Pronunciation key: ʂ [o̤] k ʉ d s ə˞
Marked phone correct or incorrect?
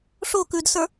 incorrect